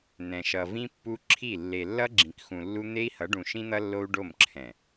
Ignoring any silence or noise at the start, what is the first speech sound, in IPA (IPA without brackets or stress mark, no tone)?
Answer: n̪